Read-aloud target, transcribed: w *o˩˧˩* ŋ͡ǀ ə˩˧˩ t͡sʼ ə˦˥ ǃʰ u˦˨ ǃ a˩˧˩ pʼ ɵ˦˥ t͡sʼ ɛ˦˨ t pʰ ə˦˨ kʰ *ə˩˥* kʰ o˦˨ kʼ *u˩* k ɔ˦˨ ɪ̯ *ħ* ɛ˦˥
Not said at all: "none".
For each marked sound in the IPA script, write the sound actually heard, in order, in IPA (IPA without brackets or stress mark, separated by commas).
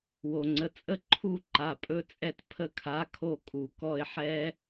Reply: o˩, a˩˥, u˩, ħ